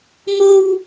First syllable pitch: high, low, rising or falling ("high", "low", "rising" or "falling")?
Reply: high